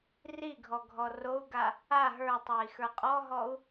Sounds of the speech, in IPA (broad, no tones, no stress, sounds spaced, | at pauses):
r i ɡʱ ɔ ɡʱ ɔ r o u̯ ɡ a | a ɦ ə˞ tˤ ə˞ i̯ x ə˞ qʼ ɔ ɦ ɔ u̯